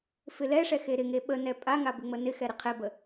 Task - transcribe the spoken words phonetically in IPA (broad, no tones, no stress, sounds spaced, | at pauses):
f ɪ l ɛ ʂ ɛ x e ɾ ɪ ŋ e ɓ ə n ɛ pʼ a ŋ a b ɪ ŋ͡m ə n ɪ x ɛ ɾ ɪ qʰ e b ə